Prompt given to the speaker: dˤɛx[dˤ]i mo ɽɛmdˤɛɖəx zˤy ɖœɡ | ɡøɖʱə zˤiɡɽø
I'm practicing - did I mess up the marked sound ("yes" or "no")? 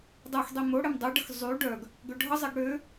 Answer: no